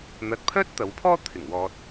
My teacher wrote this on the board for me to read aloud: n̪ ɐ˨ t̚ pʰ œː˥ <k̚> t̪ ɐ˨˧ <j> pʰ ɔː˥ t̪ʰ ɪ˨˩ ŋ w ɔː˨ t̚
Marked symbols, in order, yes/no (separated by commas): no, no